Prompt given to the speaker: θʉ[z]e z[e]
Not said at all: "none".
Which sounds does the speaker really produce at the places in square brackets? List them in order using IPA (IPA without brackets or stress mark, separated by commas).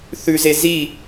z, i